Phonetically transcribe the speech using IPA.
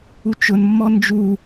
u t͡ʃ ʊ n mː ɔ n d͡ʒ u

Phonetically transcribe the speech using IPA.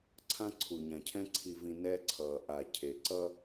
ǀʰ ã˦ ǀʰ u˨ ɲ ã˨ cʰ ɛ̃˦ ǀʰ i˨ v ĩ˨ n ɛ˦ ǀʰ ʌː˨ ʔ a˨ cʰ e˨ ǀ ʌ˦

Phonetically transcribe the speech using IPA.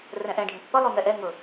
r ɛ̃ ʔ ɛ̃ ɖʱ ũ pː ʌ lˠ u ŋ ɛ ʔ ɛ ŋ ʊ

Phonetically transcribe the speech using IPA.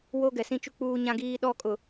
w o˦ ɡ ɛ˨ s ĩ˦ t͡ʃ u˦ k͡p uː˦ ɲ ã˦ ɡ iː˦ ɗ ɔ˦ kʼ ʊ˨

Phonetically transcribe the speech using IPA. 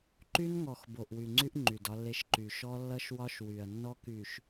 ǃ y˦ n ŋ ɔ˨ x b o˨ ʔ w y˨ ŋ͡ǀ y˦ ʔ ŋ͡ǃ y˨ d ɒ˦ lː e˦ ʃ ǃ y˨ ʃ ɔ˦ lː ʌ˦ ʃ w ɒ˦ ʃ w y˨ ɐ̯ nː ɔ˦ k y˨ ʃ

